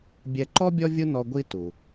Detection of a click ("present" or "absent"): present